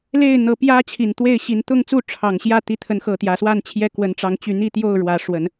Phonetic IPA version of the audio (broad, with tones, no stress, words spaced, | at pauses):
le˥˨ɪ̯n̪ɤ˨˦pjä˦ t͡ɕʰi˨˩nt̪we˥˨ɪ̯ɕi˨˦n t̪ʊ˥˨ŋ t͡su˥˨ ʈ͡ʂʰɑ˨˩ŋɕjä˥˨ t̪i˨˦t̪ʰə˨˦nxɤ˨˩ t̪jä˨˦swa˥˨nt͡ɕʰjɛ˥˨ kwə˨˦nʈ͡ʂɑ˨˦ŋt͡ɕy˨˦ n̪i˥˨t̪jo˥˨ʊ̯ ɻwä˨˦ʂwə˨˦n